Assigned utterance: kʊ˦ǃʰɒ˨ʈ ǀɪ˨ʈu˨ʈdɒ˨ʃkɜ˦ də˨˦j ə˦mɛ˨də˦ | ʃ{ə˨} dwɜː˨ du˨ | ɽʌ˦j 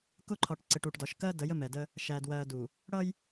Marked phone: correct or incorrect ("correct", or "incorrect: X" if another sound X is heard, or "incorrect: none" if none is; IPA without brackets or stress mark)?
incorrect: æ˨